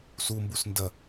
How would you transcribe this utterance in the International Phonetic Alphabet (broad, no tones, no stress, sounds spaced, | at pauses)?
s u m b u s n d ɐ